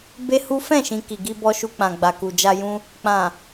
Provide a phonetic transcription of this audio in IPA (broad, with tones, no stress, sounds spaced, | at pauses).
b e˦ h u˦ f ɛ̃˦˨ ʃ ĩ˨ k i˨ ɡ i˧ b ɔ˧ ʃ u˧ k͡p ã˨ ɡ͡b a˨ k u˨ d͡ʒ a˧ j ũ˧ | k͡p ã˨